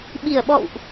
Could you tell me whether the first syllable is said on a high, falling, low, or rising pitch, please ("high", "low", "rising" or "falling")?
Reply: low